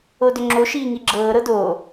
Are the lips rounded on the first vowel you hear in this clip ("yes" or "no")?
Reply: yes